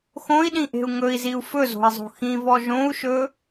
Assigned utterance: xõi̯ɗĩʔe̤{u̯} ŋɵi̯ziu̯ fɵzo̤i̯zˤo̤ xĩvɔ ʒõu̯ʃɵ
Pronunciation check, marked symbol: correct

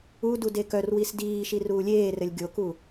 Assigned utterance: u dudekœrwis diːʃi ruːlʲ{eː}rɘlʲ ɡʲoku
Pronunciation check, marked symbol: correct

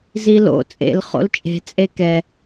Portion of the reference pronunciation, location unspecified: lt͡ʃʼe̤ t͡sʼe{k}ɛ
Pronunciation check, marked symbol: correct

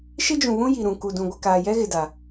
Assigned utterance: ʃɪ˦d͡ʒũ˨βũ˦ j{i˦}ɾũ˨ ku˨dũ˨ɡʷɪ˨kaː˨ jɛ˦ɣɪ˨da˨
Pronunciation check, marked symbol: incorrect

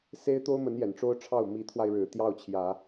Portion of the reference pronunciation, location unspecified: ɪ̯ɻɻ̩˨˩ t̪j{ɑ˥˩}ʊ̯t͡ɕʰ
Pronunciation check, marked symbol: correct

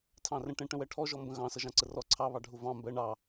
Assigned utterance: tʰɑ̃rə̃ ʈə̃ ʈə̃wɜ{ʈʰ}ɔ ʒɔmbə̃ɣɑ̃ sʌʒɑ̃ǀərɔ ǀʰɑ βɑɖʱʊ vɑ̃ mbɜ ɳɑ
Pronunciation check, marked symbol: correct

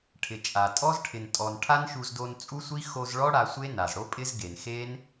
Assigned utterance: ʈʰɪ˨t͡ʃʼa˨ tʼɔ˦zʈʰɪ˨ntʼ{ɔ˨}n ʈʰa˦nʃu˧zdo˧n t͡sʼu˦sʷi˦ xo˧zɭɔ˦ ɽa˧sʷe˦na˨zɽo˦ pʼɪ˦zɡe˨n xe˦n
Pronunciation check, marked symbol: correct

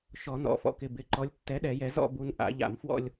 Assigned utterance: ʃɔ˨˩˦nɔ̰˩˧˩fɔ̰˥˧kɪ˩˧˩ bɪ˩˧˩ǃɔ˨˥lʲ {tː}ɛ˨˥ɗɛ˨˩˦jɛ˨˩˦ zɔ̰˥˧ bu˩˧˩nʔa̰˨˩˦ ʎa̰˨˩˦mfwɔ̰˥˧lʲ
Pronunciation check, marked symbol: correct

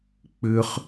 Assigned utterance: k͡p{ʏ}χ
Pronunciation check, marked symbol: correct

